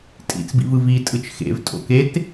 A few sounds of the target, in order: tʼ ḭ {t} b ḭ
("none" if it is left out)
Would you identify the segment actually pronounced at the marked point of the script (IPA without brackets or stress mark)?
t͡s